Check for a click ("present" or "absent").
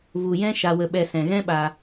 absent